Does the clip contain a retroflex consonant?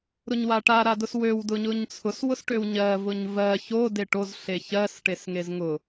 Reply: yes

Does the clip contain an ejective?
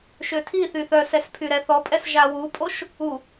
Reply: yes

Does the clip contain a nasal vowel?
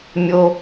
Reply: no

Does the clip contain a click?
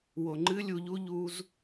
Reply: yes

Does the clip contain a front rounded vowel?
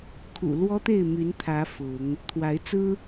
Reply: yes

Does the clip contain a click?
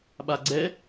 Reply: yes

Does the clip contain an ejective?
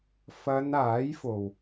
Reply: no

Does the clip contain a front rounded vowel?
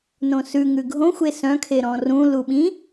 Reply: yes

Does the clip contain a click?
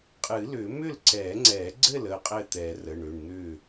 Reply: yes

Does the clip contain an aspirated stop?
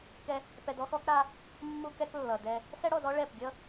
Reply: no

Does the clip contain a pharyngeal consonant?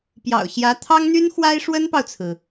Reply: no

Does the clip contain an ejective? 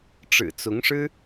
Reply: no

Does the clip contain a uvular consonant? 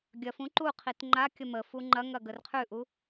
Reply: yes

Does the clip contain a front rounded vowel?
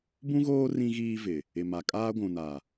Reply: no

